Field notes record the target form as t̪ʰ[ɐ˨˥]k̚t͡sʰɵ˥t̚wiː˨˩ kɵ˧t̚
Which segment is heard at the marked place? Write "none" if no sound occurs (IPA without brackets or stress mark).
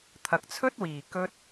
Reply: ɐ˨